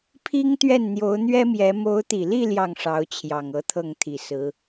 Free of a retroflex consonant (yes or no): no